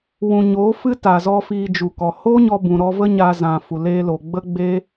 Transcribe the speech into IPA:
w ũ˨ ɲ oː˨˦ f ɨ˦ t a˨ z ɔ˧ f iː˧ d͡ʒ u˨ k ɔ˨ h o˦ ɲ ɔ˧ b ũ˨ ɾ ɔ˧ v ə˦ ɲ a˧ z ã˨ f u˨ l eː˧ l o˨ ɡ͡b ə˦ ɡ͡b eː˦

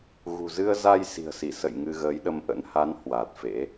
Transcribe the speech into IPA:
ɣ ṳ˨˩ z ɨ˧ ə̯ z a˧ j s i̤˨˩ ə̯ s i˧˩ s ə̰˧˨ j ŋ ɨ˧ ɣ əː˨˦ j ɗ ə˧ m ʔ ə̰˧˥ n h a˨˦ n h w a˨˩ t̚ f ḛ˧˥

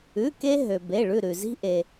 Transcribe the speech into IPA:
ʉ˩˧˩ k e˧ ɦ ø˩ b e˩˧˩ ɭ ʉ˧˩ ɾ ʉ˩ z i̤˧ ʔ e˩

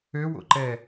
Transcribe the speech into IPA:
ø w o̰ ǃ ɛ

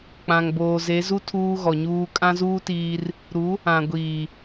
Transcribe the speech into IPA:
k͡p ã˨ ŋ b oː˨ z e˨˦ z u˦ tʰ uː˦ ɣ ɔ˨ ɲ uː˦ kʼ ã˦ z uː˦ t iː˦ r | ɾ u˨˦ | ã˨ ɡʷ iː˨

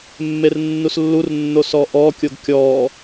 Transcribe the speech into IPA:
mː e r nː u s lː u r nː o s ɔ ʔ ɔ kʲ o ɡ kʲ ɔ

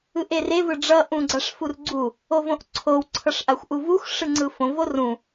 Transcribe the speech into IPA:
ɯ ʔ e r e v ɯ ɖ͡ʐ ʌ ʔ ũ ɡ͡ǀ a ʂ f u r ɡ͡ǀ u | o v õ ʔ ǀʰ o w ǀʰ ʌ ʂ ʔ a xʷ ʔ u v u x ʂ ɯ ŋ͡ǀ ɯ f õ v o r ũ

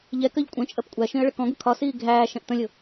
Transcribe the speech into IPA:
ʎ ɛ k ɜ ʎ kʷʼ ə̃ t͡ʃʼ ɜ p kʷʼ æ ʃ ĩ ə̯ ɭ ə k ɔ̃ ɡ ʊ kʰ ɒ s iː ɡʱ æː ʃ ɛ̃ ʔ t ə̃ lʲ ʊ

